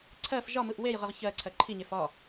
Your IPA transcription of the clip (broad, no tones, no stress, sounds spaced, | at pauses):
ǀʰ ɜ f ʒ ɒ m ɯ ʔ w e j ʁ ɯ ʁ ç ɜ ǀʰ ɜ ǃʰ i ɲ e f ɒ